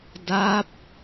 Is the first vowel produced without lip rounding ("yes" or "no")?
yes